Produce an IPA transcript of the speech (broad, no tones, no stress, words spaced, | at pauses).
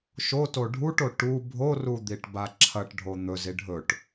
ʃoto ɖʱuʈo ʈu bʱorud̪iʈba ǁʰɐʈɖʱo n̪ɵzi ɖʱɵʈ